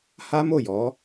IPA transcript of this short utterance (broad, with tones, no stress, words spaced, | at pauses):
ha˦mo˦˨jɔ˨˦